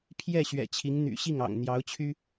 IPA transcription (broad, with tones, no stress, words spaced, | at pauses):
pʰjɛ˥˩ ɕɥɛ̰˨˩t͡ɕʰi˧˥ŋ n̪y̰˨˩ɕi˥˩ŋɑ̰˨˩ŋ n̪jɑ˧˥ʊ̯t͡ɕʰy˥